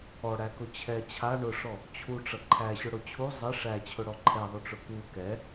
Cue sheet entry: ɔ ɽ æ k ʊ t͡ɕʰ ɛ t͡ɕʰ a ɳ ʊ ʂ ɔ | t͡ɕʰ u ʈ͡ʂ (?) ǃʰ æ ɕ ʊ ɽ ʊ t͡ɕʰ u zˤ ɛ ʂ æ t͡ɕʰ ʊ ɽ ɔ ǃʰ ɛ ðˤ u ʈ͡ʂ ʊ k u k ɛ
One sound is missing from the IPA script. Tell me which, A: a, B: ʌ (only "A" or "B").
B